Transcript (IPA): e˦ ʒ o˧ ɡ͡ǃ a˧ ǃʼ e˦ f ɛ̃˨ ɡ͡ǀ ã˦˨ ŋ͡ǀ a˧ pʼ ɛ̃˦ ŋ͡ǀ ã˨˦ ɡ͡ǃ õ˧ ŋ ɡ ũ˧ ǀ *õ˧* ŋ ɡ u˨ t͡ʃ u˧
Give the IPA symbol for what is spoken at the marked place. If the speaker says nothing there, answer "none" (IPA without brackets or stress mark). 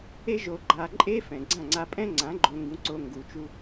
o˧